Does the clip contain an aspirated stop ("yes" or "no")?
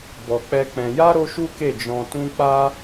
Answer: no